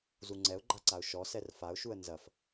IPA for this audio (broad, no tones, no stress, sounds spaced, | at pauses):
z u ŋ͡ǀ ɛ ʊ̯ ɡ͡ǃ a ǀ a ʊ̯ ʃ ɔ s ɛ r f a ʊ̯ ʃ u ə̯ n z ɐ f